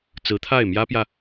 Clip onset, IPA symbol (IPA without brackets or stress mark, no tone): t͡s